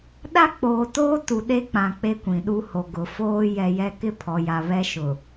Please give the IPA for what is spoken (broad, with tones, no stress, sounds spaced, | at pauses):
ɗ a˦ k͡p oː˨ t oː˦ t u˨ ɗ e˦ k͡p ã˨ k͡p e˦ kʷ ĩ˨ ɗ u˦ h o˨ ɡ ʊ˨ f oː˦ j ɛ˨ j ɛ˦ k ɪ˦ pʰ ɔ˨ j a˨ β ɛ˦ ʃ ʊ˨